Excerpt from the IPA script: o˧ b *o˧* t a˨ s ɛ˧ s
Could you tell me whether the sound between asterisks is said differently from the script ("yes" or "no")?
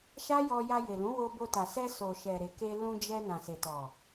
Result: no